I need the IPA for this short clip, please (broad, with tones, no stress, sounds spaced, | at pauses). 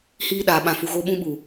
h iː˧ ɗ aː˨ ɓ ã˨ f u˨ ɣ o˧ ɓ ũ˧ ɓ u˨